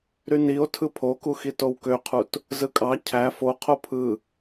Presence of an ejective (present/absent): present